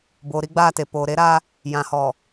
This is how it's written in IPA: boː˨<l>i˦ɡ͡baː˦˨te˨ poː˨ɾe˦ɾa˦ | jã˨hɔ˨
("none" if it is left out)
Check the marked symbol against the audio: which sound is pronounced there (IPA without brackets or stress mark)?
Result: ɾ